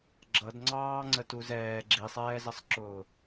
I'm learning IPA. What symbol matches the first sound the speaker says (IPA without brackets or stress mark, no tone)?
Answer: ɡ͡ǁ